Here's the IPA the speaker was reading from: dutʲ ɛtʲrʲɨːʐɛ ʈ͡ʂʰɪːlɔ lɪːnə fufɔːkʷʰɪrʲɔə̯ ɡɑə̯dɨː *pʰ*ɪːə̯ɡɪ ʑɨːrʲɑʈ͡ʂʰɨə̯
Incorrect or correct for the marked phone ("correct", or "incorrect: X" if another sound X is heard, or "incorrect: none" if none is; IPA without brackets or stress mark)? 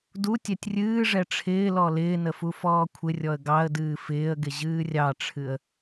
incorrect: f